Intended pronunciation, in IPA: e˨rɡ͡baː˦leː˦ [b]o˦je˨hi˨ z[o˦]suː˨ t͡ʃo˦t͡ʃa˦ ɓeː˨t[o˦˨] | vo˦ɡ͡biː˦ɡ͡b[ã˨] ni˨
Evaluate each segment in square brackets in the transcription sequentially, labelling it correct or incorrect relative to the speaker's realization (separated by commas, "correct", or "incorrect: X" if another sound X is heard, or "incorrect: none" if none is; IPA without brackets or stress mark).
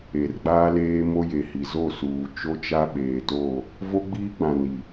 incorrect: m, incorrect: o˦˨, correct, correct